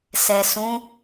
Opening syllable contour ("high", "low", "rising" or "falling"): low